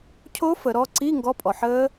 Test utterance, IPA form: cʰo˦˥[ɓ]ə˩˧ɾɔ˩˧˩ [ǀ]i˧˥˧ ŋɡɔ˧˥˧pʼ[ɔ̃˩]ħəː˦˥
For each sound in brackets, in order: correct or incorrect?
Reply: incorrect: f, correct, incorrect: ɔ˩

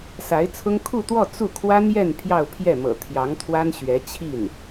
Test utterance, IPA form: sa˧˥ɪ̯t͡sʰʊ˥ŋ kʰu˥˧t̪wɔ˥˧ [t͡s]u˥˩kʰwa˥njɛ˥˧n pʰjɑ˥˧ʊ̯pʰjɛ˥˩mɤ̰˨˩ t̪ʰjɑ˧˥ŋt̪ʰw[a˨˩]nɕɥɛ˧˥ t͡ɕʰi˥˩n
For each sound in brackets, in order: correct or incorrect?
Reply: correct, incorrect: a˥

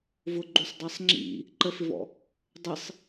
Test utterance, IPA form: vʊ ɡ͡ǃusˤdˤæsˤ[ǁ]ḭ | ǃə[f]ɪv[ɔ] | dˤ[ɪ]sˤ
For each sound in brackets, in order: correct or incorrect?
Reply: incorrect: ŋ͡ǁ, correct, incorrect: ɔ̰, correct

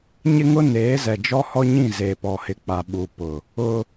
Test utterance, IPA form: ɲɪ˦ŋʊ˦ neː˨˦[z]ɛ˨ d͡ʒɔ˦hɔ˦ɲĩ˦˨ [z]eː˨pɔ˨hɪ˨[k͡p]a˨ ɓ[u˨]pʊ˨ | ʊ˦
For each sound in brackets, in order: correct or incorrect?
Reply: correct, correct, correct, correct

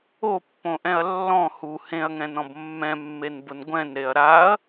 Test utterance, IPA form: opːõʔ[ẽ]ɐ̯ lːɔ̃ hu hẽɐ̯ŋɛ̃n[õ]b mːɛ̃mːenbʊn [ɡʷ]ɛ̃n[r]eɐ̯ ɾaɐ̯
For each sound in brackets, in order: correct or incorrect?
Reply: incorrect: ɛ̃, incorrect: ɔ̃, correct, incorrect: ɾ

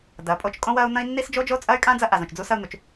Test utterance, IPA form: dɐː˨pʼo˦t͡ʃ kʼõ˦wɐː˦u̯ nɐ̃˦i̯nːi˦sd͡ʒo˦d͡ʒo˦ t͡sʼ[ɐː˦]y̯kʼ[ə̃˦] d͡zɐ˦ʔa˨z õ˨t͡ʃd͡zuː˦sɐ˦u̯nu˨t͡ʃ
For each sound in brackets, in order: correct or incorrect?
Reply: correct, incorrect: ã˦

